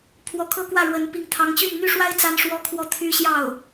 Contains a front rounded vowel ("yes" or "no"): yes